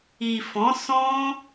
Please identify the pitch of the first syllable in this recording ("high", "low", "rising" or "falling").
low